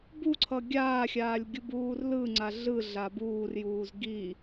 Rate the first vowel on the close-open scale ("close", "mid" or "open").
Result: close